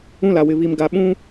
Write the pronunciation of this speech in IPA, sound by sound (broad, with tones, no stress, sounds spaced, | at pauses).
ũ˦ l a˨ w ɪ˨ β i˨ m ɡ a˨ ɓ ũ˦